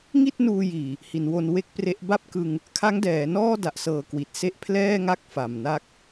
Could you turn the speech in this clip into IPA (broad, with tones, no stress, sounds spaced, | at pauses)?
ŋ i˥˩ t̚ n uː˧ j iː˨˩ | h i˩˦ n w o˧ n w e˦˥ k̚ p r e˦˥ ʔ b a˥˩ p̚ k ɯ˧ ŋ | kʰ a˦˥ ŋ d ɛː˩˦ n ɔː˥˩ d a˨˩ ʔ s ɤː˨˩ k w i˨˩ t̚ s e˥˩ ʔ pʰ l ɛː˥˩ ŋ a˥˩ k̚ f a˨˩ m n a˥˩ k̚